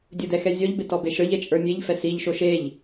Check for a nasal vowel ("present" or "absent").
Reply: absent